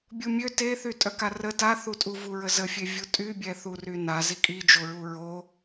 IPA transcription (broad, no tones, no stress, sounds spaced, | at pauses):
bʲ u mʲ ø t e θ y tʼ œ k a r ə t a θ u tʼ u v u ɹ ə z ə fʲ e vʲ u tʼ y bʲ ɛ θ u r y n a z i kʼ i d͡ʒ o ɹ u ɹ o